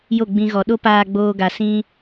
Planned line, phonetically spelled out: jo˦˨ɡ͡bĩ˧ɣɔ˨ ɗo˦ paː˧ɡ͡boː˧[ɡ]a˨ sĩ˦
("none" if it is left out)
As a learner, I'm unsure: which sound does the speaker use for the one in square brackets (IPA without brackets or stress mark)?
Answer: ɡ